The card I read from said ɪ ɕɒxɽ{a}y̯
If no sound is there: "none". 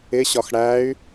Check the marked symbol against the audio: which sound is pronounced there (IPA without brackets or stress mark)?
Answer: æ